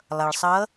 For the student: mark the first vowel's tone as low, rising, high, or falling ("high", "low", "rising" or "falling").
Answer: low